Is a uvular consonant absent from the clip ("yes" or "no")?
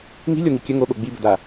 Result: yes